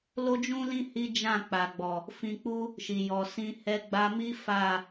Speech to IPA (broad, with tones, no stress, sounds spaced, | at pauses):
l o˦ d͡ʒ ũ˦ l ĩ˦ h i˦ d͡ʒ ã˦˨ k͡p a˨ ɡ͡b ɔ˨ | f ĩ˧ k͡p u˦ | ʃ i˨ j ɔ˨ s ĩ˧ h ɛ˧ ɡ͡b a˧ m i˦ f a˦˨